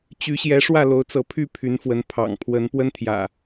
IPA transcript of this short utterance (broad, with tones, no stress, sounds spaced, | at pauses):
t͡ɕ y˨˦ ɕ j ɛ˨˦ ʂ w ä˥˨ l o˨˦ ʊ̯ t͡s ɤ˨˦ pʰ y˥˨ pʰ y˨˦ n f w ə˨˦ n pʰ ɑ̰˨˩ ŋ pʰ w ə˨˦ n p w ə˦ n t̪ʰ j ä̰˨˩